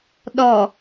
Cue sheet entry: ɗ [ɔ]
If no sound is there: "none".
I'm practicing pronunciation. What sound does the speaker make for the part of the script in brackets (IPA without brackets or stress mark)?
ɔ